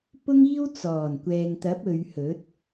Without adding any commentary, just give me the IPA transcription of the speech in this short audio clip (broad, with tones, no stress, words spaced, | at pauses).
pʊ˥ŋiː˥w t͡sɔː˨˩nkʷɛː˨ŋt̪ɐ˨˥p̚ ɵ˨˧ɥhɵ˨˥t̚